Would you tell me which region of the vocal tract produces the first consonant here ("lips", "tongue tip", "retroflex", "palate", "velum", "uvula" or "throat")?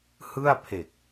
throat